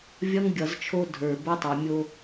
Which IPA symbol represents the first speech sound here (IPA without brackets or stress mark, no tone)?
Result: vʲ